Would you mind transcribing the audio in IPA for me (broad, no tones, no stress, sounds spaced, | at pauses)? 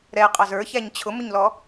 ɾ ɛ qʼ ɑ z ə˞ ç æ ɲ t͡ɕʰ ʊ m ʊ ɲ l ɔ